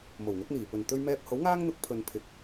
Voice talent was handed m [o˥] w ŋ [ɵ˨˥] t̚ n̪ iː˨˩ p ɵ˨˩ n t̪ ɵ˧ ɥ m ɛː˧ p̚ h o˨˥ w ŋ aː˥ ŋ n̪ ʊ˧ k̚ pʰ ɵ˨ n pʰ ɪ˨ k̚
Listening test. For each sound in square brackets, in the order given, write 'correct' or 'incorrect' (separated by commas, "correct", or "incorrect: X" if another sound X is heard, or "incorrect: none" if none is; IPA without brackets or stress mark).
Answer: incorrect: o˨˩, correct